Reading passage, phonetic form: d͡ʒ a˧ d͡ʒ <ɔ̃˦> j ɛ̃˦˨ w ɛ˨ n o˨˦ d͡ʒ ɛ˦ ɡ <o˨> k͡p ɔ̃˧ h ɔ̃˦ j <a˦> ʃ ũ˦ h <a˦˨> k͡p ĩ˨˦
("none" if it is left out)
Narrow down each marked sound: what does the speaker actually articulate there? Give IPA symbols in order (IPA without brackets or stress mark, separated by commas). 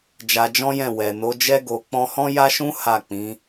ɔ̃˦, o˧, a˦, a˦˨